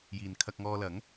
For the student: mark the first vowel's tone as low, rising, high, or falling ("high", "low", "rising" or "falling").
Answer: low